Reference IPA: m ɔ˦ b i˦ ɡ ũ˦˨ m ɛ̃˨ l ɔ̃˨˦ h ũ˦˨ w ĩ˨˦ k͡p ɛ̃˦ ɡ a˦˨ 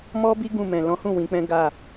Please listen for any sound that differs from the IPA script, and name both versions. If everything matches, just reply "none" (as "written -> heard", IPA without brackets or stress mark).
none